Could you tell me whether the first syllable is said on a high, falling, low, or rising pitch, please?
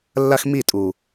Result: high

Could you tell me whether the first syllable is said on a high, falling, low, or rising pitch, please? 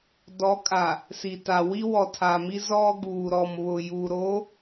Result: rising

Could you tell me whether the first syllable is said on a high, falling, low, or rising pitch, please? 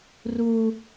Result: high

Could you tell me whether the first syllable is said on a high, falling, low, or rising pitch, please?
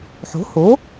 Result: rising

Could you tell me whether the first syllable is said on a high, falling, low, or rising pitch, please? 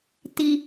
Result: low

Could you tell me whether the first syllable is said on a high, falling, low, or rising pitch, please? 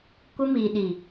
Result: high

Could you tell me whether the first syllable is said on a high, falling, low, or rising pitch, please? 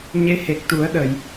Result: rising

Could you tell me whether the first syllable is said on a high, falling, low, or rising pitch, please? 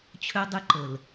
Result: high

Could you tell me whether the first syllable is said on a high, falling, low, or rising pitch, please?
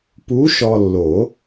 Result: rising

